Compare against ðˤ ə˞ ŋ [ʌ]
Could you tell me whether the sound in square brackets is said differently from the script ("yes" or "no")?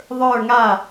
yes